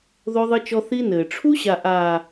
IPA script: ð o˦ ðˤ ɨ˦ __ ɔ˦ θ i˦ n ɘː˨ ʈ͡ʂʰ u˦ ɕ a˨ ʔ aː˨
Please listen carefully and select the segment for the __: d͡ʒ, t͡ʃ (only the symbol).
t͡ʃ